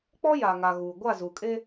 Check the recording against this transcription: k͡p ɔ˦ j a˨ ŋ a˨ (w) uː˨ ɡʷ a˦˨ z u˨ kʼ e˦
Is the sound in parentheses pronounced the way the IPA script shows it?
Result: no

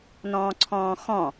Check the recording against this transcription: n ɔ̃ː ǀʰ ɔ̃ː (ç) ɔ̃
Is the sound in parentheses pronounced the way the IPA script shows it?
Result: no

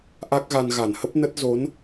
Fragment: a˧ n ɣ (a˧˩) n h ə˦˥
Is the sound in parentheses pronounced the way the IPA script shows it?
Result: yes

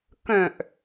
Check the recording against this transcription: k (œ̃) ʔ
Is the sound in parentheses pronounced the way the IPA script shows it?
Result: yes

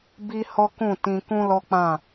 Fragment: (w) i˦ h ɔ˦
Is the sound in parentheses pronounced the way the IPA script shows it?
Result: no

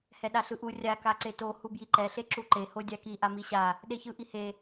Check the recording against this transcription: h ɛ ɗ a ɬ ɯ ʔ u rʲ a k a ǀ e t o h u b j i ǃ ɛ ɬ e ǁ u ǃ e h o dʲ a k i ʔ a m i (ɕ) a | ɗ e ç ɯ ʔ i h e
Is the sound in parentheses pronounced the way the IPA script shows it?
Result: yes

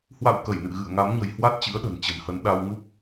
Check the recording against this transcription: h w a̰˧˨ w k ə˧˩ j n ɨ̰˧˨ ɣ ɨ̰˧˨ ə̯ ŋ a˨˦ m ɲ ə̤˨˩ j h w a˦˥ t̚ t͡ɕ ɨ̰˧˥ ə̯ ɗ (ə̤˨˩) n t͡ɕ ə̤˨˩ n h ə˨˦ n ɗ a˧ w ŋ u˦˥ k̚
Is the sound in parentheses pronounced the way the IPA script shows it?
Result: yes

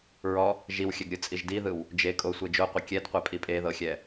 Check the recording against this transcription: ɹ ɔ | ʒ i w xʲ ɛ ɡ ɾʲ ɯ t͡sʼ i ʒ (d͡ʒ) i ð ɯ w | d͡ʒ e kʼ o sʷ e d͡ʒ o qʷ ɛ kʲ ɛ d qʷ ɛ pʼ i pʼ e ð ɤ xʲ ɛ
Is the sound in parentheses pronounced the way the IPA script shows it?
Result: no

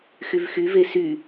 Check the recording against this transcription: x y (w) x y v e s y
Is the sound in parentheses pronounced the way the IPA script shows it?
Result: no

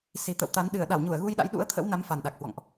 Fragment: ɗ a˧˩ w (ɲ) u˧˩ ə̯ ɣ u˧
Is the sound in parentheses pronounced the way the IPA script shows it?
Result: yes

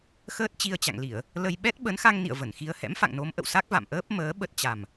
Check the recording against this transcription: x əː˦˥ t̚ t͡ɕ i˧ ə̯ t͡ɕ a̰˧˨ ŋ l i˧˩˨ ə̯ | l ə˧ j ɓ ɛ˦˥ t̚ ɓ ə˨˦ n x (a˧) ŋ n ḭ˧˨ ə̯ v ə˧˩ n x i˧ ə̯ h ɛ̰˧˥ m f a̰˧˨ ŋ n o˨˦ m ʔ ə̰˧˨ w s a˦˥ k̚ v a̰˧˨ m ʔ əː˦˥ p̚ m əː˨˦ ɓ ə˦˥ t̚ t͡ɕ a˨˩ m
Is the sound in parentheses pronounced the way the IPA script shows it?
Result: yes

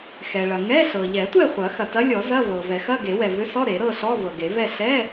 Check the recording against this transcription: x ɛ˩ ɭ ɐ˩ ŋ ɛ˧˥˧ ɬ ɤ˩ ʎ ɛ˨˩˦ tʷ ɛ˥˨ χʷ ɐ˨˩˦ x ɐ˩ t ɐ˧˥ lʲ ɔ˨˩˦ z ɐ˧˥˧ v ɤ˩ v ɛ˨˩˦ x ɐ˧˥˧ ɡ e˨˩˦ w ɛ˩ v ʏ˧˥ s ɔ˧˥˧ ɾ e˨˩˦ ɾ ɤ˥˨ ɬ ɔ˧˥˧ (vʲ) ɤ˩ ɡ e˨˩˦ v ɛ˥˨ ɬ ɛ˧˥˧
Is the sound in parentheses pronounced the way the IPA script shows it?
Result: no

